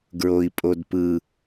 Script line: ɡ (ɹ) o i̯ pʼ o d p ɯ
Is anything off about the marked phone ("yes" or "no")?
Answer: no